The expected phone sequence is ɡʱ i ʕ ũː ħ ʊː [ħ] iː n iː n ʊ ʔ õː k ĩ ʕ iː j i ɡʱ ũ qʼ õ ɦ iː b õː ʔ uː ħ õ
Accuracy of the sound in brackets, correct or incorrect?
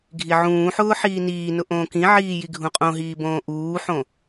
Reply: correct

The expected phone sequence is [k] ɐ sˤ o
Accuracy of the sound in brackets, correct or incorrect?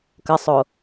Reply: correct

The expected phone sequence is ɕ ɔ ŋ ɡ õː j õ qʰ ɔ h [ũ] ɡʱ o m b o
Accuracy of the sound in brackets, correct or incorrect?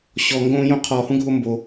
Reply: correct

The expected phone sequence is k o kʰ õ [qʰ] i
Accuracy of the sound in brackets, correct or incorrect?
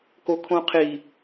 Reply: correct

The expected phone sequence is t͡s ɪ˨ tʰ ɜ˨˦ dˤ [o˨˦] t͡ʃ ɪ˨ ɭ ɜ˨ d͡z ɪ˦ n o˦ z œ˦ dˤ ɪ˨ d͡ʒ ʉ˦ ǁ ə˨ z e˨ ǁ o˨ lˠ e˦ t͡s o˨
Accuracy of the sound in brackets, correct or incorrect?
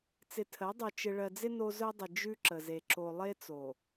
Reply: incorrect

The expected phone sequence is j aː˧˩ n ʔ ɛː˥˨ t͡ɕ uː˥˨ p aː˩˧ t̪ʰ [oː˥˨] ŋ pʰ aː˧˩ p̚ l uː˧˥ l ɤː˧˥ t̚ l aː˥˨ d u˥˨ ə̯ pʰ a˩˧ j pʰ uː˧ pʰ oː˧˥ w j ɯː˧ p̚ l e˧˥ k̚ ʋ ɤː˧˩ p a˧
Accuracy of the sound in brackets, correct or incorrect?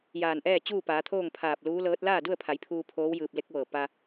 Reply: correct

